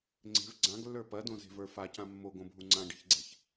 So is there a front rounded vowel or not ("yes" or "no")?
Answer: no